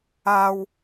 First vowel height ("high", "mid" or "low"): low